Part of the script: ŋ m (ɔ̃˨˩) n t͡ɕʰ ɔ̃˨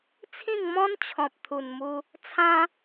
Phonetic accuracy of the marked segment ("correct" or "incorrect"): incorrect